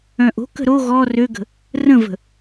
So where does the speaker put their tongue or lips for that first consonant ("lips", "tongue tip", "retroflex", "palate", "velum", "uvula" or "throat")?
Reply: throat